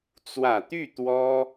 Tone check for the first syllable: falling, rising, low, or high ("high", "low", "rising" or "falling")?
low